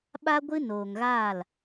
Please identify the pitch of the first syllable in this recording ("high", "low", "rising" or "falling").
high